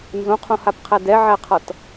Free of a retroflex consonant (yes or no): yes